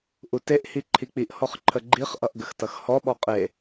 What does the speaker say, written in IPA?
ʔ u t e ʔ h i ǃʰ i k͡p i ʔ h ɔ χ ǃʰ ə ɡ͡ǃ i χ ʔ ʌ ʔ ɡ ə x t ʌ x h ɔ ɓ ɔ qʼ e

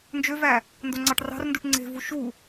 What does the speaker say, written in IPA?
n d͡ʒ ø v æ | n d o ŋ͡ǀ ɑ ʈ r ɑ̤ r n d u ʈ ŋ͡ǀ e̤ v u ʃ u

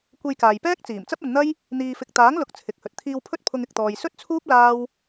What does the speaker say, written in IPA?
kʷ e˧ j k aː˨ j p ɛː˥ k̚ t͡s iː˨˩ m t͡s ɐ˥ p̚ ɐ˨˧ n n̪ ɐ˥ j | n̪ iː˧ f ɪ˧ k̚ t̪ aː˨˥ ŋ l ʊ˨˥ k̚ t͡sʰ ɪ˨˥ k̚ h ɵ˨ t̚ t̪ʰ iː˧ w pʰ ɵ˥ t̚ pʰ ʊ˧ ŋ ɪ˧ k̚ t̪ ɔː˧ j s ɵ˥ t̚ t͡sʰ uː˥ p̚ l aː˥ w

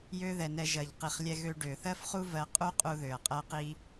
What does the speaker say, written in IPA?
j ø˧ ð ɛ˨ n ɛ˧ ʒ ɜ˨ ʎ q i˨ χ lʲ ɛ˧ ɣ ø˧ ɖ ø˨ θ ɜ˦ f χ u˦ v ɜ˧ qʼ u˦ qʼ u˧ ð ø˨ ɐ̯ qʼ ɜ˧ q i˧

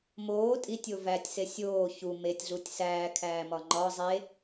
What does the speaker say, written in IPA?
m oː tʼ i tʲ o v æ tʲ s e sʲ oː ç u m e tʲ ɮ u tʲ s æː kʰ æː m ɒ ŋ͡ǃ ɒ zˤ e

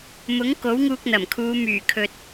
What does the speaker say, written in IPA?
m ʊ˨˥ ŋ k o˨˥ w ŋ uː˧ k̚ n̪ ɐ˨˩ m kʰ uː˨˧ m yː˨˩ kʰ ɵ˨ t̚

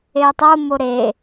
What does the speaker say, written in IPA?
e tˤ o m o ɾ e

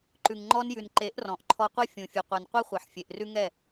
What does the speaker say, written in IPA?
ǃ ʉ˨ ŋ ŋ͡ǃ ɔ˧ n j ʉ˨ n ǃ e˨˦ ʔ r ɔ̃˨ ʔ ǃʰ ɔ˧ qʷ ɛ˦ fʲ ũ˨ fʲ ɨ˨ qʷ ɛ˨ n qʷ e˦ χʷ e˨ ħ fʲ e˨ ʔ r ʉ˦ ŋ ɛ˦˨

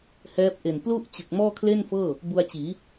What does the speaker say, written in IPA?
h ɛː˦˥ p̚ ʔ e˨˩ n p l u˥˩ ʔ t͡ɕ ɯ˨˩ k̚ m ɔː˥˩ kʰ l e˥˩ n f ɤː˥˩ | b u˧ a̯ t͡ɕ iː˩˦

